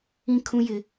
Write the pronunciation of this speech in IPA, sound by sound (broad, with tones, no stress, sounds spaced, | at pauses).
ĩ˦ kʰ ũ˦ j ɪ˦